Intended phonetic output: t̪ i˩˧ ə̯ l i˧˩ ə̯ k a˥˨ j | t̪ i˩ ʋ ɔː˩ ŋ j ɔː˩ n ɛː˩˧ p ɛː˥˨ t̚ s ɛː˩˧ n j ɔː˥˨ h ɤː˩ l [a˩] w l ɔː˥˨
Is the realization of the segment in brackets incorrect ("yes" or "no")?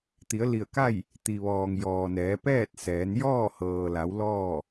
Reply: yes